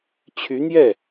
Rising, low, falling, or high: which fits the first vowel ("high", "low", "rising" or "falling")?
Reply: rising